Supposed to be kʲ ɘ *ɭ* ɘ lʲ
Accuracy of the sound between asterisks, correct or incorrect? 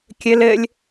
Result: incorrect